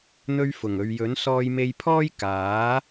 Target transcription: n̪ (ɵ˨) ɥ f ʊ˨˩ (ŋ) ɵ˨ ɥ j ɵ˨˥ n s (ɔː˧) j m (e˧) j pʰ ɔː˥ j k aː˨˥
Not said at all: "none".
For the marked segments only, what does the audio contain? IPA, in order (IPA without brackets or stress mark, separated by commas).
ɵ˧, ŋ, ɔː˧, e˧